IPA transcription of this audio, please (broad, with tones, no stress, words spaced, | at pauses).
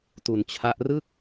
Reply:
tu˩˦nt͡ɕʰa˦˥ʔ rɯ˥˩k̚